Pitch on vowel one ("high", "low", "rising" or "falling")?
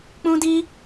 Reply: high